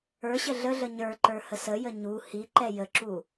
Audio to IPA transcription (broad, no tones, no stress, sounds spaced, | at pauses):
ə˞ ɕ ə ɮ ə ɮ ə ɲ ə˞ ǃ ə˞ h ə s ə j ə ɲ u h i ǃ ɛ j ə ǁ u